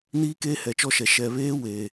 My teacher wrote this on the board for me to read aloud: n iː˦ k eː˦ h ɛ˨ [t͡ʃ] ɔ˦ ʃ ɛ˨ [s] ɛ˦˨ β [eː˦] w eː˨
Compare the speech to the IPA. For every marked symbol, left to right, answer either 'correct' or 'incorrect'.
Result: correct, incorrect: ʃ, correct

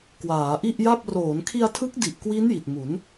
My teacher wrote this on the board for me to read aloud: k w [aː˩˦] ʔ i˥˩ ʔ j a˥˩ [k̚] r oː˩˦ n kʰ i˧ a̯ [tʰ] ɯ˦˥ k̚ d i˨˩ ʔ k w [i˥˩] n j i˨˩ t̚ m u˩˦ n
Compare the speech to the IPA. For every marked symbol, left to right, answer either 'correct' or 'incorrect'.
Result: correct, incorrect: p̚, correct, incorrect: i˦˥

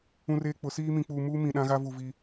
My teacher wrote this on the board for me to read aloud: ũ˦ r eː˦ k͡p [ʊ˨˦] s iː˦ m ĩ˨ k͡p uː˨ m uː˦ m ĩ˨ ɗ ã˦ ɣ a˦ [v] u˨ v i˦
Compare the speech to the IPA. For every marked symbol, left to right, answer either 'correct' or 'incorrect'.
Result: correct, correct

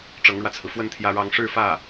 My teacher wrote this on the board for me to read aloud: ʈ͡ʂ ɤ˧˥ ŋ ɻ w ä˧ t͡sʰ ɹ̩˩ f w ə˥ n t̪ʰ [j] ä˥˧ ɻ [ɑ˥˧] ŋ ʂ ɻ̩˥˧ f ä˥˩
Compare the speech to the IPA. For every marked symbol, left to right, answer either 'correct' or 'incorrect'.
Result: correct, correct

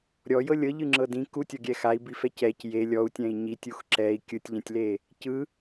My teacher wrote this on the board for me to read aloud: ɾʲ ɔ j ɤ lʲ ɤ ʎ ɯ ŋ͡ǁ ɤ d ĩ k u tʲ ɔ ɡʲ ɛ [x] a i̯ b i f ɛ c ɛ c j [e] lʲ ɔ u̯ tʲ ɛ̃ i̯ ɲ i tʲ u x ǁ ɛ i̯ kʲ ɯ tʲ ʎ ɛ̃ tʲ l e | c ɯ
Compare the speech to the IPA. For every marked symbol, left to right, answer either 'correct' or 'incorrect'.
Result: correct, correct

